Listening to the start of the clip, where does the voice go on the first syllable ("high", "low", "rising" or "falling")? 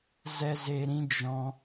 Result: high